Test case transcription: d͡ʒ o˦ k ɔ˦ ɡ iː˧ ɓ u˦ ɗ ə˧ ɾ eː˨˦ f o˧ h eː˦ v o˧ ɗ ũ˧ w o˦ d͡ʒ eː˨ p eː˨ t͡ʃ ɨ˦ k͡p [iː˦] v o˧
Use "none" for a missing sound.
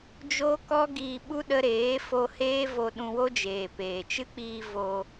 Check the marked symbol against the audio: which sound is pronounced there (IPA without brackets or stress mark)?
iː˧